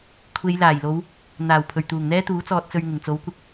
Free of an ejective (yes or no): yes